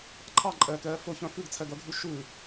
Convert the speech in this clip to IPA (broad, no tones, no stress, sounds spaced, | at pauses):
ǃʰ ɑ ǃʼ ɛː k ɛː f ɵ ç œ̃ f ʉ ɡ t͡sʰ ɛ ɡ œ ɡʱ ʉ ʃ ʉ